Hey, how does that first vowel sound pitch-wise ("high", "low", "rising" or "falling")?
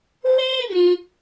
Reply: high